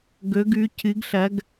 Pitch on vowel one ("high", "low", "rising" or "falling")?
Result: rising